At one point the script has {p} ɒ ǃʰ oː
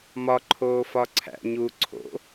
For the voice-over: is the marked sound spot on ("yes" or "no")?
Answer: no